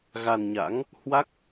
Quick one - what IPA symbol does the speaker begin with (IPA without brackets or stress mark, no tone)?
ɣ